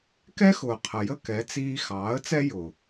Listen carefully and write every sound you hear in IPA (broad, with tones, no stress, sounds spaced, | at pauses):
k ɛ˦ x ʊː˨ qʰ ə˨ j ə˦ k ɛ˨˦ t͡s iː˧ x ɑː˨˦ ə̯ t͡s ɛ˦ j ʊː˨